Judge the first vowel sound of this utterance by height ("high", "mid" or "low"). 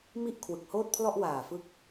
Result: high